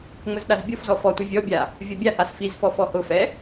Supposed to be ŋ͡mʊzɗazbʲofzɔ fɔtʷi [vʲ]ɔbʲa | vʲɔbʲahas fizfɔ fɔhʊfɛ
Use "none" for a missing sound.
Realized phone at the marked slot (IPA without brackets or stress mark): vʲ